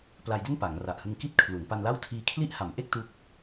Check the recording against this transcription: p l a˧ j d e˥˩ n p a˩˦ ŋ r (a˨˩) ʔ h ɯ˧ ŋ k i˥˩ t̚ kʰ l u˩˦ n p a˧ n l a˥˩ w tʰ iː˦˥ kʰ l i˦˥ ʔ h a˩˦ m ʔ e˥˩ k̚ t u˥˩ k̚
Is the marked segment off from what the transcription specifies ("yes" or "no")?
no